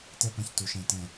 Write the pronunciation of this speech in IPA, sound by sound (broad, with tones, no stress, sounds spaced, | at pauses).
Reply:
t ɛ˦ p ã˦ ç t u˨ ʃ ɛ̃˨ t ɛ̃˨